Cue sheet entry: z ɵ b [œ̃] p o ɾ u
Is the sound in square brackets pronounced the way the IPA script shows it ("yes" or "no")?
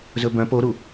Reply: yes